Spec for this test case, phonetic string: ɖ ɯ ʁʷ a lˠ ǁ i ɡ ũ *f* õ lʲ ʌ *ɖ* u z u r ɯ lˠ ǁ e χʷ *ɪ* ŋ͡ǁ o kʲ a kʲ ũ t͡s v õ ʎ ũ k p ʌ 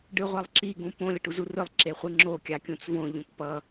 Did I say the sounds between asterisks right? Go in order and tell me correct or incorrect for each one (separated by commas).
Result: incorrect, incorrect, incorrect